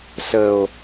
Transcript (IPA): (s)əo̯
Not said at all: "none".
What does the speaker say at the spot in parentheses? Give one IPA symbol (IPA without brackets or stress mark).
s